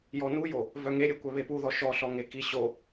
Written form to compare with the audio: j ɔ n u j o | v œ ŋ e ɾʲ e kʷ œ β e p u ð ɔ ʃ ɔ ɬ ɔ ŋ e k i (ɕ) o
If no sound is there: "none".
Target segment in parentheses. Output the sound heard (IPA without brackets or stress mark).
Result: ɕ